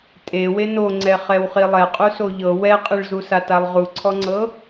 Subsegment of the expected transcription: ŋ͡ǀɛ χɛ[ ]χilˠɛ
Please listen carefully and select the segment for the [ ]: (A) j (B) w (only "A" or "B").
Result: B